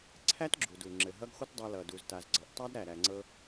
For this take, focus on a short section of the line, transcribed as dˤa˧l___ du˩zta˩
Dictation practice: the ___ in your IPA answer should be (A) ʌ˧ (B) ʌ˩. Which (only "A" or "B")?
B